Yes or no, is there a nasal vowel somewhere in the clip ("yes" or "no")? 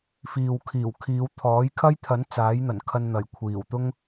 no